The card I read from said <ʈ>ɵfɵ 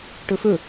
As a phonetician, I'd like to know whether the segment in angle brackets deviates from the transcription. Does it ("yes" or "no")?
no